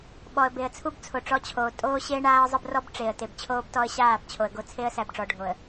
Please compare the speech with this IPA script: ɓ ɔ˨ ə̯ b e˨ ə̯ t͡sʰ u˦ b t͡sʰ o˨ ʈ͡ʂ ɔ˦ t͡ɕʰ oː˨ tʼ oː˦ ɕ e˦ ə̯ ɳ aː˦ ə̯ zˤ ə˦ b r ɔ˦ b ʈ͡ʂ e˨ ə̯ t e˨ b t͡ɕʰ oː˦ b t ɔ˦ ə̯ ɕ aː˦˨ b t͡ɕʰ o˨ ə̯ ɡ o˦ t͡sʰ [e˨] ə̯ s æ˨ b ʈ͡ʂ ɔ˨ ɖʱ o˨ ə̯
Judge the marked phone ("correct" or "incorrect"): incorrect